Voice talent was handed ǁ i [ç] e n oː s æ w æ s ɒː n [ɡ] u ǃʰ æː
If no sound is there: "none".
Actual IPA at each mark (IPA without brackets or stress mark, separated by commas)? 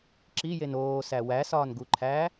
j, ɡ